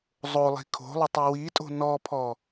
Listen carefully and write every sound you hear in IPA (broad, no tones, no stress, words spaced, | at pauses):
zˤolˠi̤ kʰo̤lˠʏtˤi witʼo̤ nɔpʰɔ